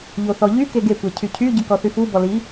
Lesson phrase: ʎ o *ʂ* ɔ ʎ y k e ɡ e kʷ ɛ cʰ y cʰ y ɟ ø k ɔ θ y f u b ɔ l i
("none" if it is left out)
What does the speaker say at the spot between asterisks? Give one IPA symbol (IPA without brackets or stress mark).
θ